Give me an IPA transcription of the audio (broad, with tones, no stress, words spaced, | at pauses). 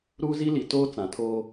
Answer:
ɾuː˦zi˦li˨ toː˦ t͡sã˨tʰoː˦